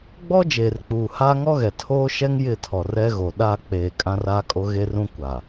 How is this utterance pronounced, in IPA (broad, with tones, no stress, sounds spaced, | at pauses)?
ɡ͡b ɔ˦ d͡ʒ eː˨ r k͡p uː˨ h aː˦ ŋ ɔ˦ ɣ ɛ˨ tʰ oː˦ ʃ ɛ˦ ŋ j ɪ˦˨ tʰ ɔ˨ r ɛ˦ ɣ o˨ ɗ a˦˨ k͡p eː˨ kʼ ã˦ r aː˦ kʼ o˦ ɣ e˦ r ũ˦ kʷ a˨